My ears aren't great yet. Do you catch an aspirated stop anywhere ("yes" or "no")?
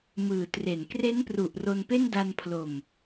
yes